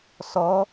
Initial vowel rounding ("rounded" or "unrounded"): rounded